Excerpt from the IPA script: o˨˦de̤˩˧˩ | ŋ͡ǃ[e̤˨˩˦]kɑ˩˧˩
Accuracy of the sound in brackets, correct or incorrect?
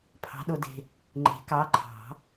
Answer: correct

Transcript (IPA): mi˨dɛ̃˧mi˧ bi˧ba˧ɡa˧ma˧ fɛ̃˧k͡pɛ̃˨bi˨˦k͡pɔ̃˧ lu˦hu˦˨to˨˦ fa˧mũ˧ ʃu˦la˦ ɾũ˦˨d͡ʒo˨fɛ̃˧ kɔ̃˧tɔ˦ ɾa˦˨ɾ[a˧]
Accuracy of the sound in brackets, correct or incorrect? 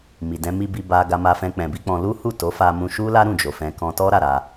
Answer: correct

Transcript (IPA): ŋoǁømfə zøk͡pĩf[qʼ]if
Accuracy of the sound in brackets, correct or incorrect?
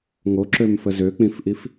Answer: incorrect: ʔ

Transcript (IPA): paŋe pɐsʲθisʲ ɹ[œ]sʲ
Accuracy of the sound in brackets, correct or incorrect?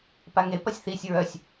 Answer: correct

